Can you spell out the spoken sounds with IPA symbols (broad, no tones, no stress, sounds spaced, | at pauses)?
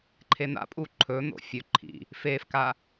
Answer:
ǃʰ e n̪ a̰ pʼ u ǃʰ ɵ n̪ o̰ fʲ ɵ ǃʰ ḭ | f e f k a